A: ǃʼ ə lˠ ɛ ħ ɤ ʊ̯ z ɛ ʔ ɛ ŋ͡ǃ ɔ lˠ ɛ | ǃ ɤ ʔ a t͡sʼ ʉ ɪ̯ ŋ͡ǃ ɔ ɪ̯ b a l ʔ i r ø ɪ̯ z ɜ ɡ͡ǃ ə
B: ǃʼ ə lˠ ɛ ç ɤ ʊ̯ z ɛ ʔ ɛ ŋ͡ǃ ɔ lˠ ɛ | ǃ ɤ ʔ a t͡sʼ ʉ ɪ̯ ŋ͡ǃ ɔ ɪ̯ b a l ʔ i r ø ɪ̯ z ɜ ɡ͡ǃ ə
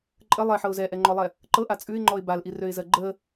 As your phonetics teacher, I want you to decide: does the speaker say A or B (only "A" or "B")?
A